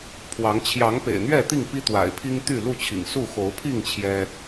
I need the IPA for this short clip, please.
pʰ w ɑ˨˦ ŋ t͡ɕʰ j ɑ˨˦ ŋ p ḛ˨˩ ɪ̯ n̪ ɥ ɛ˥˨ t̪ i˥˨ ŋ p i˦ t̪ w a̰˨˩ ɪ̯ pʰ i˦ ŋ t̪ y˥˨ l u˥˨ t͡ɕʰ ḭ˨˩ ŋ s u˥˨ x o˨˦ ʊ̯ pʰ i˥˨ ŋ t͡ɕʰ j ɛ˦

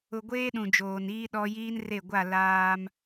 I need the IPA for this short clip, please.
ʊ˨ ɡʷ eː˦ ɗ ũ˨ d͡ʒ oː˨ n iː˦ ɗ ɔ˦ j iː˦ n r e˦˨ ɡʷ a˦˨ l aː˦ m

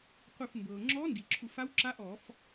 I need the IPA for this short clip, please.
qʷ ɯ˧˩ f m b ɤː˩ ŋ͡ǁ ɔː˧˥ n d i˩ ǁʰ u˧˩˧ f a˧˥ w ǁ a˧˥ ʔ ɔː˧˩˧ f

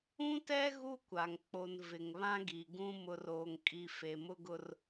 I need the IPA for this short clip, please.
ũ˦ t ɛ˦ ɣ u˦ kʷ a˨ ŋ k͡p o˨ n v ɪ˨ ŋ β ã˦ ɡ i˨ ɡ ũ˦ m ʊ˨ r oː˨ ŋ kʼ i˨ f e˨ m ʊ˦ ɡ ʊ˦ r

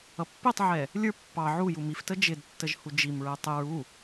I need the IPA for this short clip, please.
ʌ pː i tˤ ʕ ɛ | lʲ ə˞ pː ɑ ʕ u j u m i f t ə d͡ʒ ɪ d tː ə ʒ h u d͡ʒ i m ɹ ɛ tˤ ɪ ɹ u

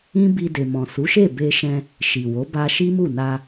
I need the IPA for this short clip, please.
ĩ˦ b i˧ d e˨ m ɔ̃˨ s u˨˦ ʃ e˦˨ b e˧ ʃ ɛ̃˧ | ʃ i˨ w o˨˦ b a˧ ʃ i˦ m u˦˨ n a˧

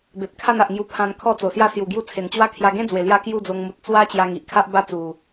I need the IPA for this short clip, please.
b e˨ p̚ kʰ a˥˧ n a˨ ʔ ŋ j u˧ pʰ ã˧ n kʰ ɔ˦ t͡s o˨˩ s j a˥˧ s j u˨˩ ɡ j u˧ t͡sʰ e˨˩ n t͡ɕ w a˦ kʰ j a˧ ɡ ẽ˦ d͡z w e˨˩ l j a˧ k j u˥˧ d͡z o˧ ŋ m u˨ t̚ t͡s w a˦ t͡ɕ j a˧ ŋ i˨ ʔ kʰ a˦ ʔ b a˦ t͡s u˨˩

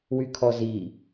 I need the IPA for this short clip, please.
w y kʰ ɔ z i

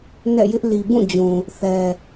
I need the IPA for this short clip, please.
n ɛ̰˦˨ j ɪ˦ ʔ l i˨ b ũ˦˨ d͡ʑ ũ˨ | θ ɛ˨

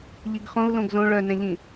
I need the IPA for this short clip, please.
ʎ i ɡ χ õ u̯ l õ ɡ z õ ɭ œ n ɛ̃ ʎ ĩ

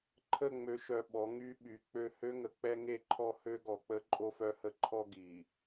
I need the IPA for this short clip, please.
ǃʰ ə˦˨ ŋ͡m ø˨ ʃ œ˨ ɓ ɔ˨˦ ŋ y˦ ɓ y˨˦ k͡p ø˦ h ø˦ ŋ ə˨ k͡p ɛ˦ ŋ e˦ ǃʰ ɔ˦˨ h ø˦ ɡ ɔ˨ k͡p ə˦ ǃʼ o˦ f œ˦ h ə˦ ǃʰ ɔ˦ ɡ i˨

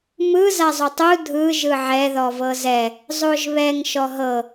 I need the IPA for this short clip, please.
m ɯ z a zˤ o tˤ u dʱ ɯ ʒ ɯ ʕ ɛ ð ɔ v ɤ z ɛ | zˤ o ʒ β ɛ ŋ ʃ ɔ ɦ ɤ

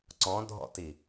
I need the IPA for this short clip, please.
ǀ ɔ̃ dʱ ɔ̰ t i

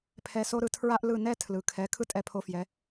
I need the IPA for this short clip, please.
pʰ ɛ˧ s o˥ ɾ ɯ˧ tʰ ɹ a˥ ʔ l ɯ˥˩ n ɛ˥ tʰ l ɯ˩ kʰ ɛ˩˥ kʰ ɯ˥ tʼ ɛ˧ pʰ o˧ f j ɛ˩˥

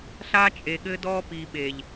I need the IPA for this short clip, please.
ɬ a˦ t͡ʃʼ e˨ ɠ ɘ˦ d ɔ˦ p i˨ ɓ e˨ ʎ

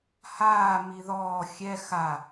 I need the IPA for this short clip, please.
h aː m i ð ɔː xʲ ɛ x a

